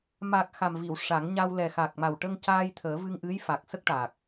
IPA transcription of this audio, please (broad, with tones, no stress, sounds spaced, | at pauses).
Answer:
m a˨˩ k̚ x a˨˩ m v i˨˩˨ w ʂ a˨˩˦ ŋ ɲ a˧ w l ɛ˨˩ x a˨˩ k̚ m a˨˩ w ʈ ə˧ ŋ c aː˧ j t̪ʰ əː˨˩˦ v ɨ˧ ŋ ʔ ɨ˧˥ j f a˨˩ k̚ s ə˦˥ k̚ ʈ a˨˩ k̚